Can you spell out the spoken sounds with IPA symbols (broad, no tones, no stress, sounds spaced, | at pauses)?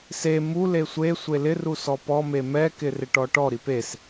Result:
s e m u l e sʷ e sʷ e l ɪ r u s ɔ p ɔ m e m ɛ k ɪ r ɪ ʈ ɔ ʈ ɔ ɾ i p e s